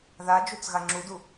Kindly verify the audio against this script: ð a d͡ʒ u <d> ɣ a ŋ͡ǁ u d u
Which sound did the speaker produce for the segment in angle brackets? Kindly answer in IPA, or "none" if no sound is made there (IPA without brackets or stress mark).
t͡s